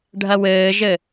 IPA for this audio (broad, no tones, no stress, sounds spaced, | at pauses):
ɖʱ ɐ w ɘː ʒ ɘ